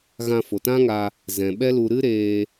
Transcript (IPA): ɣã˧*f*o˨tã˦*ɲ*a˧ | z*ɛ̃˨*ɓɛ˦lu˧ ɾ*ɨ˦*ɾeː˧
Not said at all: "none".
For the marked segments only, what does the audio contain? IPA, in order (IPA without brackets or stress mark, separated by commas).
f, ŋ, ɛ̃˨, ɨ˦